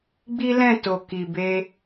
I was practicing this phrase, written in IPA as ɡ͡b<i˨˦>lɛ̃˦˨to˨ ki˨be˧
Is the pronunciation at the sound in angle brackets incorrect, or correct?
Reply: incorrect